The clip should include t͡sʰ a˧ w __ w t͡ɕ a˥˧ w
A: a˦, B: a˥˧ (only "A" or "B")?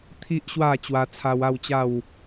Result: B